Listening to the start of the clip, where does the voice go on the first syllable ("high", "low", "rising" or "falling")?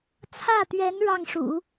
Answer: falling